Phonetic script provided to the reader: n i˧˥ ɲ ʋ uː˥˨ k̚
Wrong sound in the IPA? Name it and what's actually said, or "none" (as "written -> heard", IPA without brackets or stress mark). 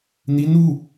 ɲ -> n